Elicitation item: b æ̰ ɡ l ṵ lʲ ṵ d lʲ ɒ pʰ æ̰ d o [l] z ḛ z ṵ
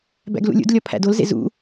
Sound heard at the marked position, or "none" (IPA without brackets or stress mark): l